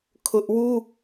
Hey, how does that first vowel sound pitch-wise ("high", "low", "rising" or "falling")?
high